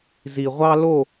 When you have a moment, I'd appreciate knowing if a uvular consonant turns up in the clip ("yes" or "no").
yes